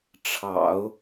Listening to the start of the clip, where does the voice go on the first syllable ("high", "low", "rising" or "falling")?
low